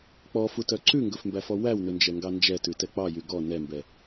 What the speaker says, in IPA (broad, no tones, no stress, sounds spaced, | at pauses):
k͡p ɔ f u t œ ǀ ʉ ŋ ɡ ɵ f m b æ f ɔ w æ w n ɵ n d͡ʒ ɛ ŋ ɡ ɑ n d͡ʒ ɛ t ʉ t ɛ k͡p ɑ j y ɡ ɔ n ɛ m b ɛ